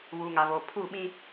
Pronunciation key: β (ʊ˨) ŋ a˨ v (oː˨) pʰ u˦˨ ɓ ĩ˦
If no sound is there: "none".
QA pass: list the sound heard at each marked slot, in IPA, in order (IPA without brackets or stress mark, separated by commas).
u˨, oː˨